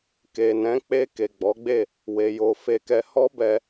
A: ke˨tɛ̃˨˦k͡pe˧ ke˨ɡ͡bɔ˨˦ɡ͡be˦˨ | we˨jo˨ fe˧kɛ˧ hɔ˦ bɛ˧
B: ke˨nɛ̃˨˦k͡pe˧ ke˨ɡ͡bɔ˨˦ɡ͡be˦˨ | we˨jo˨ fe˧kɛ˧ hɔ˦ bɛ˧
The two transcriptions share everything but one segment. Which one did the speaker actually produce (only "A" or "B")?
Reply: B